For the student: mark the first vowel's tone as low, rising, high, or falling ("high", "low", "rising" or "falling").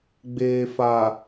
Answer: low